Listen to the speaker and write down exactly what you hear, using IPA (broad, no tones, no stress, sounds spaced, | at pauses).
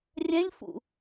rʲ ɛ̃ ʎ f ṵ